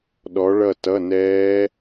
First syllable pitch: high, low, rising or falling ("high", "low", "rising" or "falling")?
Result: rising